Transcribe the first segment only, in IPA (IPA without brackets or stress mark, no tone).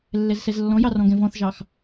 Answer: lː